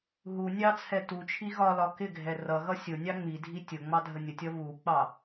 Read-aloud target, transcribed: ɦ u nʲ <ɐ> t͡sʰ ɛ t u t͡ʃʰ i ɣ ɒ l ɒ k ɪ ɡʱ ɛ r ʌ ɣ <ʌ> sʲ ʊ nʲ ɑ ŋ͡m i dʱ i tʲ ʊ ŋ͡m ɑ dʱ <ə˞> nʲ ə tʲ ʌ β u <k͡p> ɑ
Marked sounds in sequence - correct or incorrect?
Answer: incorrect: ɑ, correct, incorrect: ə, correct

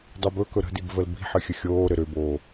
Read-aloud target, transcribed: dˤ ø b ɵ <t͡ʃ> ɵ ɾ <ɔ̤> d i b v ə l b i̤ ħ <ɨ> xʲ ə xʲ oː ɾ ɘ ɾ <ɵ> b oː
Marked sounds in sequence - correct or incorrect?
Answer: incorrect: k, incorrect: ə̤, correct, incorrect: ø

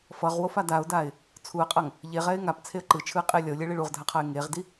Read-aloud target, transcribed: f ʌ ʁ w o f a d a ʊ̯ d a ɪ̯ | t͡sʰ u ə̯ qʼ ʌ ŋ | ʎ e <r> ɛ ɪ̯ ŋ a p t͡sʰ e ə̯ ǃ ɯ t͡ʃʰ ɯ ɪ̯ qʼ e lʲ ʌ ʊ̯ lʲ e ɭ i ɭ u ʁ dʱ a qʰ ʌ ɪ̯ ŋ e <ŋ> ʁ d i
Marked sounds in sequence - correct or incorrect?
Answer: incorrect: ʁ, incorrect: none

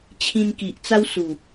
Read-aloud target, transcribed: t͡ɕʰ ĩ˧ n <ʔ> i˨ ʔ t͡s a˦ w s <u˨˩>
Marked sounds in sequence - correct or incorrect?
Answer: incorrect: k, correct

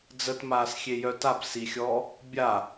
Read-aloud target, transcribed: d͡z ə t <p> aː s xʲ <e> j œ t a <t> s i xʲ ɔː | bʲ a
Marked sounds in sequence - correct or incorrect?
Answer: incorrect: m, correct, incorrect: p

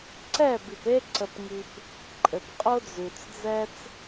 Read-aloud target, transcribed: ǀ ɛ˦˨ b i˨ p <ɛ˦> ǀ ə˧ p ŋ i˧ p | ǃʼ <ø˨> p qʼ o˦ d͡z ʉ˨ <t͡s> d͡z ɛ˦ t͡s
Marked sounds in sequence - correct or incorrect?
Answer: incorrect: e˦, incorrect: ɘ˨, correct

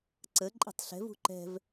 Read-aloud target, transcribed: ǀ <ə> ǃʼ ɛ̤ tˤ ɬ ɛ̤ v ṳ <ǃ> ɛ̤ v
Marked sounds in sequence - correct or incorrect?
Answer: correct, correct

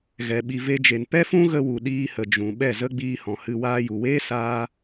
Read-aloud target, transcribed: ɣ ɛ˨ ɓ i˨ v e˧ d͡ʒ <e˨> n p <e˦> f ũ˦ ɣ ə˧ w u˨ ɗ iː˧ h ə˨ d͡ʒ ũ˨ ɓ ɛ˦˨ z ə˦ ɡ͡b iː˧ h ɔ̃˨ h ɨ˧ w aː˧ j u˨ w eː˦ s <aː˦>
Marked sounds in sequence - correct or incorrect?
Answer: correct, incorrect: ɛ˦, correct

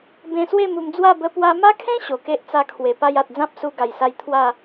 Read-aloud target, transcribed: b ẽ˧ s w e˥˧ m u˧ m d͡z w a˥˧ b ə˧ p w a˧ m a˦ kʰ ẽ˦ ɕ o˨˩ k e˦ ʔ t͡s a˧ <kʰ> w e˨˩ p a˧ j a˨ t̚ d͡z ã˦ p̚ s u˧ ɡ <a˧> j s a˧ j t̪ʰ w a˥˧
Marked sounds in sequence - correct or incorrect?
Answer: correct, incorrect: a˨˩

